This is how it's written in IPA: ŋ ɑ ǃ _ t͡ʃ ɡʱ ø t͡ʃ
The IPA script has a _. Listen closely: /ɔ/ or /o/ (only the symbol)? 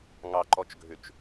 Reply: ɔ